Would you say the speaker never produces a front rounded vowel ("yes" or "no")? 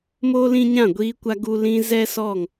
yes